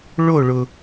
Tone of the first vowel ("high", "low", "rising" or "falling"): falling